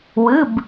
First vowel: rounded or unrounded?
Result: unrounded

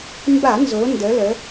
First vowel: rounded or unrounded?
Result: unrounded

